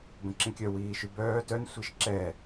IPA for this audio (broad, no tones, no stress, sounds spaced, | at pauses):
b ə̃ ǁ ĩ kʲ œ w iː ʃ y b œː t œ n sʷ i ʃ ǁ ɛ